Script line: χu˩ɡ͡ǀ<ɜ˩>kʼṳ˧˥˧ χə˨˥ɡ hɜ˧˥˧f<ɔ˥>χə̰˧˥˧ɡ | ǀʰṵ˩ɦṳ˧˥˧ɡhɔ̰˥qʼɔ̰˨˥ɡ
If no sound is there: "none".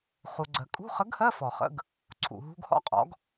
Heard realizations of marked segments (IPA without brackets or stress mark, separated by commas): ɜ˩, ɔ˩